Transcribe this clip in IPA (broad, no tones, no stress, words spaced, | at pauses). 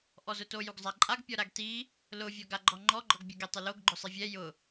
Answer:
ʔɔzʊto juɡzˤaǃʼaɡ pʲɔɾaɡti | lʊ vʲɔɡaɡ͡ǃɔŋ͡ǃɔ ɡ͡ǃɔɡbʲʊɡe tˤɪloɡ ɡ͡ǃʊsˤivʲɛ jʊ